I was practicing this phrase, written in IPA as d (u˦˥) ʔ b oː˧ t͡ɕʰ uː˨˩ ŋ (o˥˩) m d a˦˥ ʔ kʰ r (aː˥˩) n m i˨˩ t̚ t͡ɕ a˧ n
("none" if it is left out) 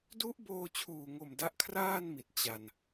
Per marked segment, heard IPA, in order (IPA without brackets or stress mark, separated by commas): u˦˥, o˨˩, aː˥˩